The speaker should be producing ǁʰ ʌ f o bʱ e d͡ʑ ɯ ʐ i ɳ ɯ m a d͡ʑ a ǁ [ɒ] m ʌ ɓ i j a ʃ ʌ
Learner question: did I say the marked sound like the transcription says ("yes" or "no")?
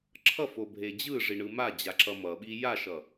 no